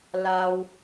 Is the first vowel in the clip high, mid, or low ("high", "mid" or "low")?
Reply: low